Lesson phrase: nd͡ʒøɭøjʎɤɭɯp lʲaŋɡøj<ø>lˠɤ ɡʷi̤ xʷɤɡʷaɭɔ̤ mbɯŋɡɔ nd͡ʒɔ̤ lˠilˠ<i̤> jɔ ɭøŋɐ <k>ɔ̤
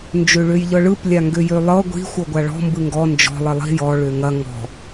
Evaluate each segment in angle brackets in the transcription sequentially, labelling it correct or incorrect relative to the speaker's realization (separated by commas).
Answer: correct, correct, incorrect